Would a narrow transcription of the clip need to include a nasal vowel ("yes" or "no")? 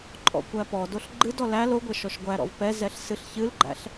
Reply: no